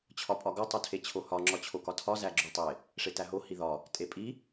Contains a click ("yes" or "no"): yes